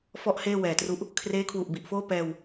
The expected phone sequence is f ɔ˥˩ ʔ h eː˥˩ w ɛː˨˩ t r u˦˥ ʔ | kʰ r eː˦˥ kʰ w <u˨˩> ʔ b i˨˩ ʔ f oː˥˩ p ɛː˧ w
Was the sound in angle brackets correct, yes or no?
yes